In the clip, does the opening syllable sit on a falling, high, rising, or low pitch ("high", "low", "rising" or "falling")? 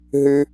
high